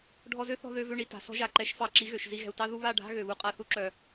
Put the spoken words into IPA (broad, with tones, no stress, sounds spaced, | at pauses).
ɖʱ ɔ˧ z ø˦ θ ɔ̤˧ ð ø˧ v ø˧ ɳ i˨ t a̤˨ s ɔ̤˦ ʒ a˧ ǃ ɛ˧ ʃ f ɑ˧ ǁ i˨˦ ɣ ø˨ ʃ z i˧ ɣ ɛ̤˨ u̯ t ɑ˦ ð u˧ β a˦˨ ɖʱ a̤˦ ɣ ø˨ β u˧ qʼ a˧ θ u˧ ǁ œ˨